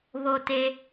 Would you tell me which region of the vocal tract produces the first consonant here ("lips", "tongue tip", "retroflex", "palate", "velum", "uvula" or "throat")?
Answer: lips